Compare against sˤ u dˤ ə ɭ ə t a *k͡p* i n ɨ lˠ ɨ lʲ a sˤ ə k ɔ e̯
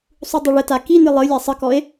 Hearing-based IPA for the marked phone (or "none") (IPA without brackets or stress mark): k